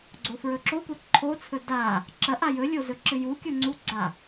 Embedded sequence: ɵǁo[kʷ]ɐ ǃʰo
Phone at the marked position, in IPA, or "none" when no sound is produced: kʷ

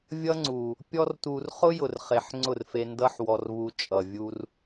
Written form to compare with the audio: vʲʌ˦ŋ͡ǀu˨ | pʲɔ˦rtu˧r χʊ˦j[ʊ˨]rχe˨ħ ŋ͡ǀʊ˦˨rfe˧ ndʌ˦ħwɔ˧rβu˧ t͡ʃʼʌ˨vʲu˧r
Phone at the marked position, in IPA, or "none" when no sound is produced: ʊ˨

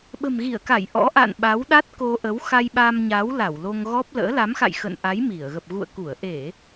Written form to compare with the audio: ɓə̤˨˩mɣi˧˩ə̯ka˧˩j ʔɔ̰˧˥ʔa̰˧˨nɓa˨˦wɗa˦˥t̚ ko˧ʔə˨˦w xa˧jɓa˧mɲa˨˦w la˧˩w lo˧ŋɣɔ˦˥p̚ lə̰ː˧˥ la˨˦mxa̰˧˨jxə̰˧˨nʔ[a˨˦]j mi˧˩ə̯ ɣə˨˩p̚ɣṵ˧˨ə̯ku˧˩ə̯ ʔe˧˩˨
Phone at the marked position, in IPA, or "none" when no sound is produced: a˨˦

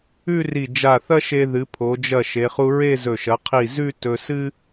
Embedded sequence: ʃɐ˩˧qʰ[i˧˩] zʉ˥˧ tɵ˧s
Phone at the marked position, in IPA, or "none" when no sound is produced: i˧˩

